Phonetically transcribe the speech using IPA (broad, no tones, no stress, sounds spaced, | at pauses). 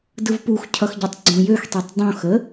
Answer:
d ɯ v p u x cʰ ʌ x ɟ ʌ tˤ ɡ͡ǀ õ j ø x tˤ i tˤ dˤ õ x ə